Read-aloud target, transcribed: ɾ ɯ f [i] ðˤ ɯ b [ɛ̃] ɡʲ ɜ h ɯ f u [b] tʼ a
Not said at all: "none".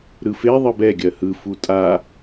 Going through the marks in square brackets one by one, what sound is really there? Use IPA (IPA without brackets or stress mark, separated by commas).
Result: e, ɛ, none